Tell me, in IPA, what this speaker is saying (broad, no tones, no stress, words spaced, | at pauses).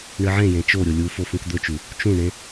ɳɨʕẽjẽ t͡ʃoɾʲo lʲufo fũkd̪ɵt͡ʃu | t͡ʃũɳẽ